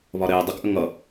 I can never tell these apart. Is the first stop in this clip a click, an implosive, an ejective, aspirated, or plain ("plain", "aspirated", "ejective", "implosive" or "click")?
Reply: plain